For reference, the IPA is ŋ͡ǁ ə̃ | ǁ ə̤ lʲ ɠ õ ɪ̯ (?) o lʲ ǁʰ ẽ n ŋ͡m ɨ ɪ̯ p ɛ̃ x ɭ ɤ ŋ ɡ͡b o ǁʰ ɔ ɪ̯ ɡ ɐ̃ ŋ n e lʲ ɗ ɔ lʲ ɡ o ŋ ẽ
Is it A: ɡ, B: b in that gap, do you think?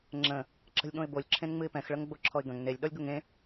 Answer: B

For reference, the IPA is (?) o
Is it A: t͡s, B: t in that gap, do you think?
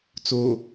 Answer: A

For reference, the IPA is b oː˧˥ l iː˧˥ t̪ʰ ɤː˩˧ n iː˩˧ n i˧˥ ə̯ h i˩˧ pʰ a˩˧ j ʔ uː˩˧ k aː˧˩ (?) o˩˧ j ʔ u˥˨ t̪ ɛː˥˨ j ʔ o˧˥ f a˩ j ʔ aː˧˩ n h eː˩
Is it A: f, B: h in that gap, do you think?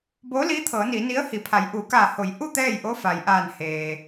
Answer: B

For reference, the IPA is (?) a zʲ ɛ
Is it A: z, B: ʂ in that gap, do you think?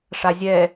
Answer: B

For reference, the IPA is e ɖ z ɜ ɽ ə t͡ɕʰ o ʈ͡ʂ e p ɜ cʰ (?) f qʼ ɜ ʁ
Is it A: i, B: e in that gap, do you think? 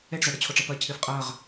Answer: A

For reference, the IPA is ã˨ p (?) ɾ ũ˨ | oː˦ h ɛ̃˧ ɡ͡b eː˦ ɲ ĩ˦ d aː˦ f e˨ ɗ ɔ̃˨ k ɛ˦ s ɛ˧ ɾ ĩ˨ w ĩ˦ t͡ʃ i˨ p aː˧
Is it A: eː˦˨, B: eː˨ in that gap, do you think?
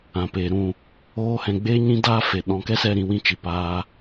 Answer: B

